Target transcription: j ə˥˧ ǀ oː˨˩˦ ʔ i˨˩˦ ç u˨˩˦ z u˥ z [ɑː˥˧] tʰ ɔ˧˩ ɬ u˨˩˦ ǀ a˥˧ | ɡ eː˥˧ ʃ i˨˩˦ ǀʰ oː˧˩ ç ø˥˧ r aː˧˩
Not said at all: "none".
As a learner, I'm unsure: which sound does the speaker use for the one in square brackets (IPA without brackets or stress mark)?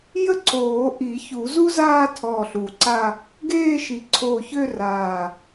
aː˥˧